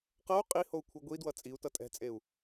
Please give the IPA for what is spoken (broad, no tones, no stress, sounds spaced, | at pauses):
q ʌ u̯ qʼ i h o u̯ kʷʰ ɯ ɡʷ i d w ʌ t͡sʼ i u̯ t ʌ tʼ ɛ̤ t͡sʼ e u̯